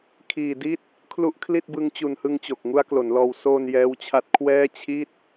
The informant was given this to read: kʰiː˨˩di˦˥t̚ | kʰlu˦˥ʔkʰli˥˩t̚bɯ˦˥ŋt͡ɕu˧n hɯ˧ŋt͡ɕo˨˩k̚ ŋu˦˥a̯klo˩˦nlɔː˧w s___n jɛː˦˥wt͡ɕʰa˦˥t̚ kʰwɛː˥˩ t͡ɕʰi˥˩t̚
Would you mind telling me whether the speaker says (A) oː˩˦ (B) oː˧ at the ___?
B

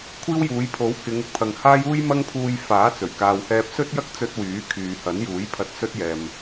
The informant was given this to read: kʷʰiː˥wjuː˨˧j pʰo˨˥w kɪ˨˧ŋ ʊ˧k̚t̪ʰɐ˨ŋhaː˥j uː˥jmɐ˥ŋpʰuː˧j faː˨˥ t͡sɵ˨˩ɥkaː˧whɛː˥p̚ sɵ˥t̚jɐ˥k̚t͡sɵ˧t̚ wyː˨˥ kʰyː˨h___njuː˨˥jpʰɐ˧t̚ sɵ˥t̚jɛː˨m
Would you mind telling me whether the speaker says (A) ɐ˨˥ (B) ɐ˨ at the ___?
A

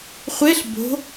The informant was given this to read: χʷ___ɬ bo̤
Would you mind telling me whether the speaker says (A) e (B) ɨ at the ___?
A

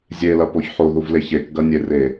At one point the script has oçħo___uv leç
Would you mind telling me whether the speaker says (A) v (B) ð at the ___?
B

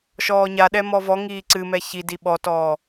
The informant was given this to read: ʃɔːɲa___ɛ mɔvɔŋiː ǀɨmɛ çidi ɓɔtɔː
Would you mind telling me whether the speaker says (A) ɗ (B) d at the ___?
A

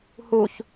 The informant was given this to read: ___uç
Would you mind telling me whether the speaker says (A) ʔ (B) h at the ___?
B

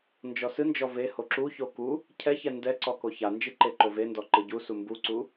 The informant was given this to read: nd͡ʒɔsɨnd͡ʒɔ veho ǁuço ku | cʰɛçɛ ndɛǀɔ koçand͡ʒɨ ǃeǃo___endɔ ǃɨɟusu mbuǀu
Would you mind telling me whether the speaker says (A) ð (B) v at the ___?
B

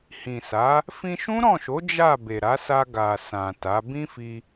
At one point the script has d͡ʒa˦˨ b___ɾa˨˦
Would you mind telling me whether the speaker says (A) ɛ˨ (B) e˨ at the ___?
B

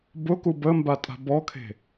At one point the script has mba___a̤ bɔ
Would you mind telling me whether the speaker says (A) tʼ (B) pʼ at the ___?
A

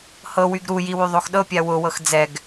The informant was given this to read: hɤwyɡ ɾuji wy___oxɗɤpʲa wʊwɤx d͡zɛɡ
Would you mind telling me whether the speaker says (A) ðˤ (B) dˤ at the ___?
A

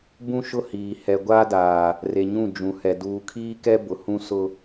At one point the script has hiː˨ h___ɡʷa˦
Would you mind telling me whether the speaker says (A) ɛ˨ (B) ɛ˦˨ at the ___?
A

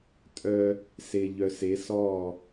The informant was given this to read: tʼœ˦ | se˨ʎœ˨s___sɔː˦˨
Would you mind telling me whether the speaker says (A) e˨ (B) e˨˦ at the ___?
B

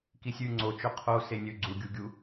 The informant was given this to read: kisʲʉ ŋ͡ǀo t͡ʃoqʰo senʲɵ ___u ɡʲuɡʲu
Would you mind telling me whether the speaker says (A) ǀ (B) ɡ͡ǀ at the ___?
B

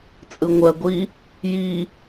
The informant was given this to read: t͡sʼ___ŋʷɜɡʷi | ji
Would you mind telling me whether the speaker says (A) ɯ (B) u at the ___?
A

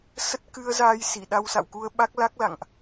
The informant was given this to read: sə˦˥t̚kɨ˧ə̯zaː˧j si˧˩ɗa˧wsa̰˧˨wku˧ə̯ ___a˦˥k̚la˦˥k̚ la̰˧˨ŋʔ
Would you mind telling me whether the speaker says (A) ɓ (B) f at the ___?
A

